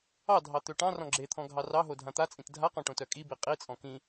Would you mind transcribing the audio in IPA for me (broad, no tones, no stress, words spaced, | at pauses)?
ɑdʱɑ t̪øʈɑ̃rɔ̃ ɡ͡ǁet̪ʰɔ̃ ɡʱɑrɑɦo dʱãt̪at͡sʼĩt dʱaqɔ̃ ʈõtœkʼibi qʼit͡sʼɔ̃ kĩ